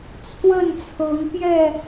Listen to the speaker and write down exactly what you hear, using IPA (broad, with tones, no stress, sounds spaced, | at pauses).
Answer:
t͡sʰ w ə˥˨ n t͡sʰ ɤ˨˦ ŋ p j ɛ˥˨